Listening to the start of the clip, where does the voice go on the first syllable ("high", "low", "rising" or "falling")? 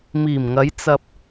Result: low